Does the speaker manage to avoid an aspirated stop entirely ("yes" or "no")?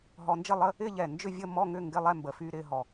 yes